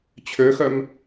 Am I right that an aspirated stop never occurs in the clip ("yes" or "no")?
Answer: no